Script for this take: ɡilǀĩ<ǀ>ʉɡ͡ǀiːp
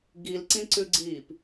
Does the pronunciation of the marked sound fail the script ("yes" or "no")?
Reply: no